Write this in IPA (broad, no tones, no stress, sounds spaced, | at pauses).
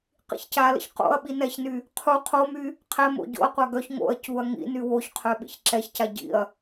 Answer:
q ḭ ç c a l ə̰ ç q o̰ ɐ̯ ɓ i n ɛ ç n y | qʰ u qʰ o m y | qʰ ɛ m o̰ ɟ o̰ ɐ̯ qʷ a ɡ œ ç ŋ o̰ ɐ̯ c u ɐ̯ ŋ ḭ n y w o ç qʰ œ ɓ ḭ ç ǁ ɛ ç c a ɟ ḭ ɐ̯